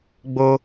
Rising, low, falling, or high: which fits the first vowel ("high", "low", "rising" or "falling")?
high